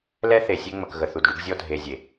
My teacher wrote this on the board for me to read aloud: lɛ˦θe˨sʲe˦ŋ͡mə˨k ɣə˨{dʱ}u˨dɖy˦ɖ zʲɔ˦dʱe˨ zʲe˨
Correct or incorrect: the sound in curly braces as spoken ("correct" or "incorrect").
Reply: incorrect